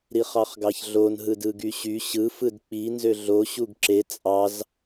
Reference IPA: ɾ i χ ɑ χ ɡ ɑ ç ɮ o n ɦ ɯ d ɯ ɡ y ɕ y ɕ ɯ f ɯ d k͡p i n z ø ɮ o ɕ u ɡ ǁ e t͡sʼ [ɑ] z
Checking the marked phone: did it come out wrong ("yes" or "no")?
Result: no